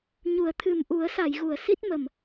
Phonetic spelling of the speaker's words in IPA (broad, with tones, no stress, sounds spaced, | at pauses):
ɲ u˨˩˦ ə̯ t̪ʰ ɨ˨˩ m ʔ u˨˩˦ ə̯ s a˨˩˨ j ɣ u˨˩˨ ə̯ s i˦˥ t̚ m ə˨˩ m